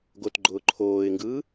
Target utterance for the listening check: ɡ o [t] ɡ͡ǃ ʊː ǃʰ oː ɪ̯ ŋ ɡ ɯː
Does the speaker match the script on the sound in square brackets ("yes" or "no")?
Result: yes